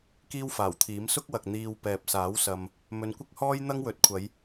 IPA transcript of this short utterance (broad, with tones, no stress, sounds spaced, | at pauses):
k iː˥ w f aː˨˩ w t̪ʰ iː˨˥ m s ʊ˥ k̚ w ɐ˨ k̚ n̪ iː˧ w p ɛː˨ p̚ s aː˨˥ w s ɐ˨ m | m ɵ˨˧ n kʷ ɪ˥ k̚ h ɔː˥ j n̪ ɐ˥ ŋ w ɵ˨˥ t̚ kʷʰ ɐ˨˧ j